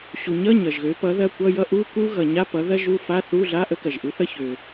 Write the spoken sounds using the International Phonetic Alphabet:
ɕ u˩ ɲ ʌ˧˥˧ ɲ ʌ˩ ʒ ɣ ø˩˥ p ʌ˩˥ ð ɐ˧˥˧ kʷ ʌ˧˥˧ j ʌ˥ ʔ u˧˥˧ k u˥ ɣ ʌ˩ ɲ a˧˥˧ p ʌ˩˥ ð ɐ˥ ʒ u˧˥˧ f a˧˥˧ θ u˧˥˧ ɮ a˧˥˧ ʔ ə˥ k ɐ˩ ʒ ʔ u˩˥ θ ʌ˥ ç ø˩

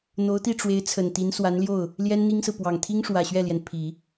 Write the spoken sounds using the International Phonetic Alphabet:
n̪ o˧˥ ʊ̯ t̪ i˥˩ ʈ͡ʂ w e˧˥ ɪ̯ t͡sʰ ə˨˩ n t̪ i˧˥ n s w a˧˥ n l j o˥˩ ʊ̯ | l j ɛ˥ n n̪ i˥ ŋ s ɹ̩˨ p w ɑ˨˩ ŋ t̪ʰ i˥ ŋ ʂ w ä˨˩ ɕ ɥ ɛ˥˩ l j ɛ˩ n pʰ i˨˩˦

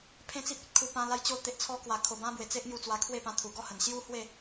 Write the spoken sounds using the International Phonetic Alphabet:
pʰ ẽ˦ t͡s i˦ p̚ e˦ t̚ kʰ u˨˩ p ã˧ l a˧ j t͡ɕ o˧ t̪ e˨ ʔ t͡sʰ ɔ˧ k w a˨˩ kʰ o˨˩ b ã˧ b w e˨˩ t͡s e˦ ʔ ŋ j u˧ t͡s w a˧ kʰ w e˥˧ p ã˧ t̪ʰ u˨˩ ɡ ɔ˥˧ h ə˨˩ n ɕ j u˦ h w e˥˧

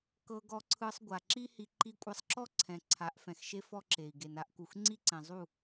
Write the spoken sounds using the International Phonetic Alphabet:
k ɤ˧ ɡ ɔ˧ ǀʰ ɯ˧ sˤ ɡʷ a˨ ǁ i˦ h i˧ ǃ i˧ kʷʼ ɛ˧ sˤ ǁ ɔ˦ ǀʰ ɛ̃˨ ǀʰ a˨˦ ʔ f ɛ̃˨ x ʃ e˦ f ɔ˦ ǁ e˨ i̯ ɡ e˨ n a˦ ʔ k u˨ x ŋ͡ǀ i˦ ǀ ɛ̃˨ zˤ u˦˨

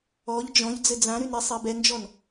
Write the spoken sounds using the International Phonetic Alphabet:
ɔ ʎ d͡ʒ ɔ̃ ʎ d͡z ɘ d͡z ã ɾ y n ɾ e sˤ ɛ b ɛ n d͡ʒ ɔ n

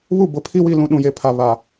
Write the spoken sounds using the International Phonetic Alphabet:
β u˦˨ b ʊ˨ pʰ i˦ w i˦˨ l ũ˦ ɗ ũ˨ j e˨ pʰ a˨ β a˨

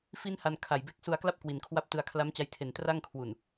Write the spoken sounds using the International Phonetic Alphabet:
f i˥˩ n h a˧ n kʰ a˨˩ j b e˦˥ k̚ s u˧ a̯ k l a˥˩ p̚ k w i˨˩ n kʰ w a˥˩ p̚ t ɯ˧ a̯ kʰ l a˦˥ m t͡ɕ a˧ j tʰ e˨˩ n t r a˥˩ ŋ kʰ w u˨˩ n

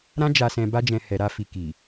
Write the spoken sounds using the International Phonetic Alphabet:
ɾ ã˦ d͡ʒ a˧ s ɛ̃˧ b a˦ d͡ʒ ɛ̃˧ h ɛ˨ ɾ a˧ f i˨ k i˨

